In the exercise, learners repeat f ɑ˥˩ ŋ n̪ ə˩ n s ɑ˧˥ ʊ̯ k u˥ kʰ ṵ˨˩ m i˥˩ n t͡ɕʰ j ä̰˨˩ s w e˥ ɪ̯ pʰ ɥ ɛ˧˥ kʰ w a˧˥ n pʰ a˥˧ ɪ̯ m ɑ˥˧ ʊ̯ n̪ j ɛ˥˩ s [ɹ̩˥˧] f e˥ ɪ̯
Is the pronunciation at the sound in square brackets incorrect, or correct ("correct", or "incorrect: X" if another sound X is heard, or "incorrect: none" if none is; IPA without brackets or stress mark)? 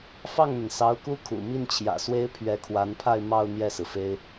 incorrect: ɹ̩˩